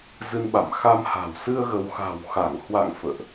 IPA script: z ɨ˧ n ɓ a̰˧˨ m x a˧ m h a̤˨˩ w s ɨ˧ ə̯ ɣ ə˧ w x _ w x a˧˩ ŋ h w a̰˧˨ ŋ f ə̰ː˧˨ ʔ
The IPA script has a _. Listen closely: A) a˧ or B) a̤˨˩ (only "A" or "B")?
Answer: B